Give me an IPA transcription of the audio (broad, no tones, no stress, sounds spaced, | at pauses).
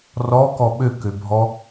r ɔ k ɔ ɓ ø k ø bʱ ɔ